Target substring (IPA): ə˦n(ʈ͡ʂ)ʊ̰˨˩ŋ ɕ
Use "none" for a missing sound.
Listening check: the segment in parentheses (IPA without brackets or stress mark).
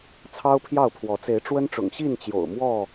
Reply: ʈ͡ʂ